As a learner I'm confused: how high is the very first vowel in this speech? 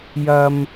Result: low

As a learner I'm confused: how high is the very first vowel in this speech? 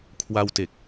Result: low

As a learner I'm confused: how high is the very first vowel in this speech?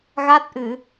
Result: low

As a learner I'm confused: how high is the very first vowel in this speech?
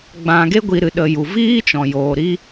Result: low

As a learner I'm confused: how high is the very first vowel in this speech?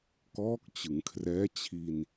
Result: mid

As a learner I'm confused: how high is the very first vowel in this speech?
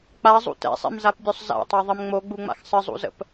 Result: low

